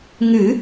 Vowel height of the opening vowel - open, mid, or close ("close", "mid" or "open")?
close